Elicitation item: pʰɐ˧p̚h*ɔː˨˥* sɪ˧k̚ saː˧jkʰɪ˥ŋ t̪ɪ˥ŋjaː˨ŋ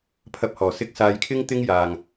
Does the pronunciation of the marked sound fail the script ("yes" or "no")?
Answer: yes